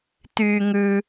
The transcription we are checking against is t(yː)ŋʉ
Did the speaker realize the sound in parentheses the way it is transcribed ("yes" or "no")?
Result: yes